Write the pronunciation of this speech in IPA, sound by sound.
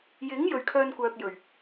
j ɪ˨˥ ŋ j ɵ˨ ɥ kʰ œː˧ n kʷ œː˨ k̚ j ɵ˨˩ ɥ

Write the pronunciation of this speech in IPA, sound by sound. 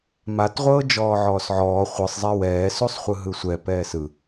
m a t ʁʷ ɤː d͡ʒ ɔː ʕ ɔː s ʕ ɔː χʷ ɯ sˤ zˤ ɛ w ɛː s u sˤ χʷ ɯ ɦ ɯ sʷ ɛ p ɛː s ɯ

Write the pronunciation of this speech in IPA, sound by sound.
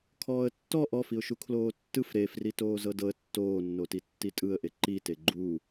kʰ ɔː ə̯ tː ɔ ʔ ɔ f i ʊ̯ ʃ u kʰ l oː tː ɯ f ɾ e f r i t oː z ɤ d ɤ ə̯ tː oː nː o t i tː i tʼ ɯ ə̯ ʔ e ǃ i t e ɡ͡ǃ u

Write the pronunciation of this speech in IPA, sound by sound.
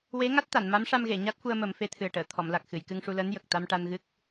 w e˧˥ ŋ a˦˥ t̚ t̪ a˨˩˨ n m a˧˥ m ʂ a˧ m ɣ e˨˩˨ ɲ a˦˥ t̚ f u˧ ə̯ m ə˨˩˦ m f e˧˥ t̪ʰ ɨ˨˩ ə̯ ʈ əː˨˩˨ t̪ʰ ɔ˨˩˨ m l a˨˩ k̚ x ɨ˨˩˨ j k ɨ˧ ŋ ʂ u˧ l əː˧˥ n j ə˨˩ k̚ t̪ a˧ m ʈ a˧ n ɣ ɨ˦˥ k̚

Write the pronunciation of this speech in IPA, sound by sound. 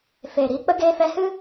f eː˨ ɾ iː˧ k͡p ə˦ ɡ eː˧ f ɛ˧ h ɨ˦

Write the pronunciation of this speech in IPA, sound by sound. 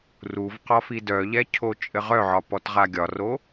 r u v q ɒ f i d œ ʎ ɛ cʰ o t͡ʃʼ ɘ ʁ œ ʕ ɒ p ɔ t ʁ a ɡʲ ɒ r o

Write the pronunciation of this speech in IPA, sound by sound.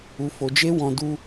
u˨ f o˨ d͡ʒ e˧ w ɔ̃˧ d u˦

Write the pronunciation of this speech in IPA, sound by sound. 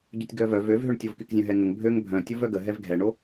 ɟ ø tʲ ɡ œ v œ v ø v ɦ ø ɳ tʲ o v k y k zʲ œ̃ ɦ ɛ ŋ ə ŋ bʱ ø ŋ bʱ œ̃ tʲ o v œ ɡ ə ɦ ɛ v ɡʱ ɛ ɳ o

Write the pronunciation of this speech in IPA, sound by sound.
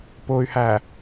p ʊː y̯ h æ

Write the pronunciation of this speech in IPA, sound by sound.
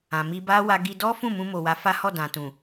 ã˨ m i˧ b a˦ w a˧ ɡ i˧ d ɔ˦ f ũ˦˨ m ũ˧ m o˨ w a˨˦ f a˦ h ɔ˦˨ d ã˨ t ũ˨

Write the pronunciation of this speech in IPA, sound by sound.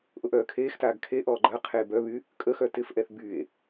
ʔ ʊ ʔ œː kʰ eː x t aː ɡ kʰ e ʔ ɔː ɡ͡ǃ ɐ qʰ eː b œ β y | kʼ ə x œ t ɪ f ʔ ɛ θ b y e̯

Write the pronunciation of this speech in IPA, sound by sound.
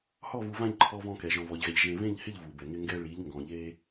h ɔ˦˨ v u˨ v ã˦˨ ʎ ǃʰ ɔ˦ v ɔ̃˦ k ɛ˨ ʒ ɔ̃˨ v ɔ˨ ʎ ɣ ɛ˨ ʎ ʒ ẽ˨ v ẽ˦˨ ʎ h ɪ˦˨ ʎ v u˨ b ɛ˨ ŋ ɪ˦ ŋ ɡ ɛ˦ ɭ i˨˦ ʎ ŋ ɡ ɔ̃˨ ʎ e˦

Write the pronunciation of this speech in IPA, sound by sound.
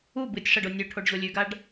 u b ɨ tʲ ʂ ɐ ɖ o nʲ ʉ ʈʰ o ɖ ʑ o lʲ ʉ ɡ a ɖ

